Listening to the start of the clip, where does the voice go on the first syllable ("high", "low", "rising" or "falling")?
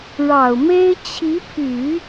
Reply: low